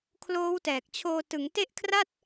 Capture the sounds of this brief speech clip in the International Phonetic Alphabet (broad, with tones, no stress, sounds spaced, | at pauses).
kʰ l oː˦˥ w t ɛː˨˩ k̚ t͡ɕʰ oː˧ t ɯ˩˦ ŋ t e˦˥ ʔ kʰ r a˥˩ t̚